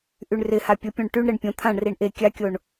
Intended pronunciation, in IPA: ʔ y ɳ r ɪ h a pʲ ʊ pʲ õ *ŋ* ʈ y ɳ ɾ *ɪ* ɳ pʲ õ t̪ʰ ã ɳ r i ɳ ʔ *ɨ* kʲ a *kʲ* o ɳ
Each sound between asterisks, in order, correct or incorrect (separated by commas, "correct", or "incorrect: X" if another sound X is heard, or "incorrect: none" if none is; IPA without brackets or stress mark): incorrect: ɳ, correct, incorrect: e, correct